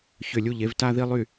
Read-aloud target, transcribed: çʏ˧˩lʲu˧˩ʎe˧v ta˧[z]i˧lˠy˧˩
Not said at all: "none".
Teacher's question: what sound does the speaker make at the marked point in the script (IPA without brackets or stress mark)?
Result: ð